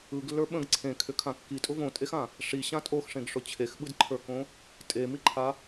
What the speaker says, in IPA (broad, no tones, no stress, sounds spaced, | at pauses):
ɯ ɡ lː ə˞ ɓ ə̃ ɡ ǀʰ ẽ kʰ ʏ kʰ ã kː i tʼ ʊ v õ tʼ e x ã | ʂ i ɕ ã tʼ o x ʂ ẽ ɡ ʂ ʊ t͡ɕʰ e x ɓ ɯ d ǃʰ ə˞ k õ | tʼ e m i ǃʰ a